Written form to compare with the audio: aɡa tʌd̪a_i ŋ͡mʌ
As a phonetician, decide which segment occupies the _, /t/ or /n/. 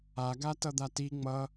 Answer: t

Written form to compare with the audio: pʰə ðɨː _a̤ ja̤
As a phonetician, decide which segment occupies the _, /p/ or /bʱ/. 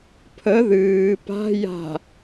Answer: p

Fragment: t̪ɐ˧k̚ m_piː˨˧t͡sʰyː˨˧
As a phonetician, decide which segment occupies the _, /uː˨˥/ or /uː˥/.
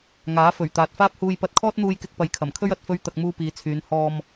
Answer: uː˥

